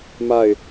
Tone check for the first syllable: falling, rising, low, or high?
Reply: falling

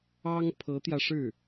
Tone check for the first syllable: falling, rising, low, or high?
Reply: high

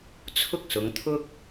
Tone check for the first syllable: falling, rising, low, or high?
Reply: high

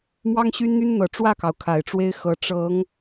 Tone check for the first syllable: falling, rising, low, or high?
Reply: high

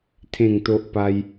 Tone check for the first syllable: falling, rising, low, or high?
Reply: falling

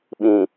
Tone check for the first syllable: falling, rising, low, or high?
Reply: low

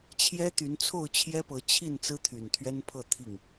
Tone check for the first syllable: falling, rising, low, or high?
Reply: high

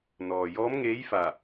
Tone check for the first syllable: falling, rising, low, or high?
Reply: low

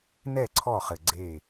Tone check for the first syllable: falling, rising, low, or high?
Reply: falling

